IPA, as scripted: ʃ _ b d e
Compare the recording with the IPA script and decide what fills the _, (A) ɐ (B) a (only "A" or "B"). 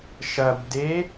A